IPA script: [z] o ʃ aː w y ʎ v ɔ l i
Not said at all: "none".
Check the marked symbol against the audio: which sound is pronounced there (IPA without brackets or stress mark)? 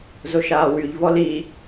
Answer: z